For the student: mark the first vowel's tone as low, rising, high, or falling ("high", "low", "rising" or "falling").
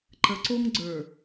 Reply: rising